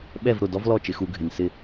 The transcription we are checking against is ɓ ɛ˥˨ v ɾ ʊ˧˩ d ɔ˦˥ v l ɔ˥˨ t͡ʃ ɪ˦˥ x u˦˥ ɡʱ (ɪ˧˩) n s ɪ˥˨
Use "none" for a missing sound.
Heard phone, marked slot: ɪ˧˩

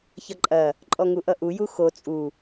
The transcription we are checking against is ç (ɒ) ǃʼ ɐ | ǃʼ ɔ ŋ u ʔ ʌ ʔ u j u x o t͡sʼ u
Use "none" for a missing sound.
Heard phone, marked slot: ʌ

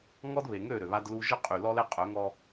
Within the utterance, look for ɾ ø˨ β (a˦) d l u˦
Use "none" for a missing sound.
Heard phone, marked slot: a˦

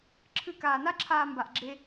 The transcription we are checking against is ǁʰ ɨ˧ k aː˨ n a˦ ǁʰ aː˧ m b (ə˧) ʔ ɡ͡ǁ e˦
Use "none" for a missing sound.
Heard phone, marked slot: a˧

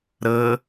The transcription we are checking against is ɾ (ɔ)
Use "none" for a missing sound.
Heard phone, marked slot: ɤ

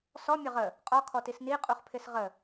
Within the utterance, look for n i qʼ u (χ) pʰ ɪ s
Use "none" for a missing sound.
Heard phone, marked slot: χ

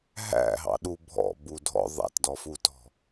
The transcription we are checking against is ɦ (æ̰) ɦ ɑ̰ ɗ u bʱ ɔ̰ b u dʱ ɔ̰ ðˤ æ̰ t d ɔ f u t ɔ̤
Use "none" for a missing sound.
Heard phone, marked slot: æ̰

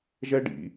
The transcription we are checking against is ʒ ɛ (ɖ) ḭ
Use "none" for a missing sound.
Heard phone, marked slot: ɖ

